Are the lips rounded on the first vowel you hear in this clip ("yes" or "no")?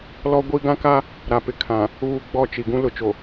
yes